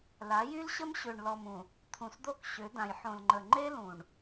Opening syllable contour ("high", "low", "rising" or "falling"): rising